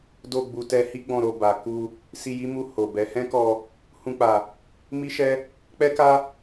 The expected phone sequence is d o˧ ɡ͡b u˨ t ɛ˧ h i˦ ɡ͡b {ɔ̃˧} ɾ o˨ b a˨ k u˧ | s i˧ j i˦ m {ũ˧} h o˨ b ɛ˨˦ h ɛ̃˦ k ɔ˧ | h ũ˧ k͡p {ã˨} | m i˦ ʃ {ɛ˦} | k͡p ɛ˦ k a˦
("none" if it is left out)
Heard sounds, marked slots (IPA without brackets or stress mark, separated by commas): ɔ̃˧, u˧, a˨, ɛ˦